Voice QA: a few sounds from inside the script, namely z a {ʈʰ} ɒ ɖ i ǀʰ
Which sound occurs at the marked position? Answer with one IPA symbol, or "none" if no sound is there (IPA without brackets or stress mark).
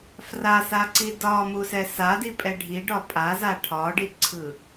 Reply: ʈʰ